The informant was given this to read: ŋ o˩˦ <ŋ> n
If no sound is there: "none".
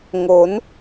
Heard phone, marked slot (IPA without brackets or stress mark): none